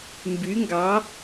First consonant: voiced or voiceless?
voiced